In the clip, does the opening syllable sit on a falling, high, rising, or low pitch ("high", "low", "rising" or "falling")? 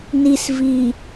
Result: low